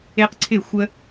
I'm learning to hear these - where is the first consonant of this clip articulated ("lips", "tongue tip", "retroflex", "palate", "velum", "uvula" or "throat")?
uvula